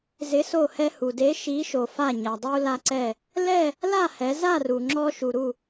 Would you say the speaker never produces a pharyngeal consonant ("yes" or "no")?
yes